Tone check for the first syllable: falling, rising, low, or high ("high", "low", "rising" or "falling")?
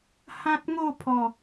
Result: high